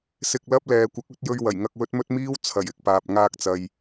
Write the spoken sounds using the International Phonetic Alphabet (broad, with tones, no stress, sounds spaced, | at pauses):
s ɪ˧ k̚ l ɐ˥ p̚ l ɛː˨ kʷ ɐ˨˥ k̚ ɵ˨˥ t̚ j ɵ˧ ɥ w ɐ˨˩ j ŋ ɐ˧ k̚ w ɵ˥ t̚ m ɵ˥ t̚ m iː˥ w t͡sʰ ɐ˨˩ j ɪ˧ k̚ p aː˨ p̚ ŋ aː˧ k̚ t͡s ɐ˨ j